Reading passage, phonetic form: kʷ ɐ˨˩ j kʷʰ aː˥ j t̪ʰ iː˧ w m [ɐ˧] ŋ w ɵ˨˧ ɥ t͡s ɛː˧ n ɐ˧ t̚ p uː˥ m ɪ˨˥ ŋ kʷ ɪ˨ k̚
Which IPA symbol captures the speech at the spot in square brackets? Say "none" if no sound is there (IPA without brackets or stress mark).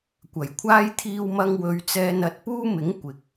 ɐ˧